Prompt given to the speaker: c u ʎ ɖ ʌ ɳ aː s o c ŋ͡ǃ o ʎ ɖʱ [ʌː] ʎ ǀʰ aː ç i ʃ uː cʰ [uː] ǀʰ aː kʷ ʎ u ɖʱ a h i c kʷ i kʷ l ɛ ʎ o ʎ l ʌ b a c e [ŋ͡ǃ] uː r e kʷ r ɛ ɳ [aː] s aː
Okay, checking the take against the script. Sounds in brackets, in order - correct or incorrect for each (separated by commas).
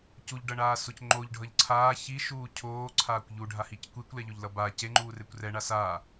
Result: incorrect, incorrect, correct, incorrect